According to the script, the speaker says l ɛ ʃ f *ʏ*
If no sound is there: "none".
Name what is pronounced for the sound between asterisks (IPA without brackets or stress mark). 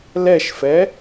ɛ